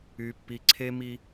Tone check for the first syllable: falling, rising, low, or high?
low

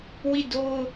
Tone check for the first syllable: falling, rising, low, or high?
falling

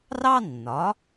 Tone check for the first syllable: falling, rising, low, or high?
high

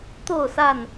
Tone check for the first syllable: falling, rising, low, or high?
falling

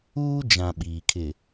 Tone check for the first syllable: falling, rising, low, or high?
high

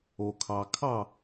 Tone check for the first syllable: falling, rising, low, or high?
low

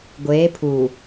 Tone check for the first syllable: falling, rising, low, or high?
rising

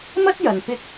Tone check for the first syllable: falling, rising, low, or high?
high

